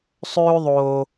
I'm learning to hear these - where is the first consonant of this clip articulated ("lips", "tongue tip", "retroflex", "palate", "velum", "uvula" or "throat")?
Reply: tongue tip